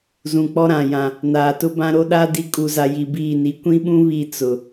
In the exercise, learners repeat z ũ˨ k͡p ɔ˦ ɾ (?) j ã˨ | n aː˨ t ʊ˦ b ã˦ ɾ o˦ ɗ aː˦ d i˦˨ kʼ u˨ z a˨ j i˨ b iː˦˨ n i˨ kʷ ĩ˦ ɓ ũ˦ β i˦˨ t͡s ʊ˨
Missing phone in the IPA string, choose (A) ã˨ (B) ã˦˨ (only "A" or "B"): A